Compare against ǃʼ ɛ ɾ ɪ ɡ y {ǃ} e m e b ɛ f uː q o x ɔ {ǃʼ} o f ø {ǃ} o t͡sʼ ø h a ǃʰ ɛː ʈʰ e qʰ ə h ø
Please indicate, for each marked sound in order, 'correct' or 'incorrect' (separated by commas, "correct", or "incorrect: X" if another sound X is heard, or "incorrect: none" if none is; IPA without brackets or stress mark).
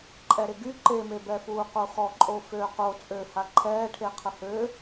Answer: correct, correct, incorrect: q